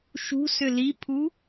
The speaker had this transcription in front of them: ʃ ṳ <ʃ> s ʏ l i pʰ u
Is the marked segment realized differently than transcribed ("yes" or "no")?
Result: yes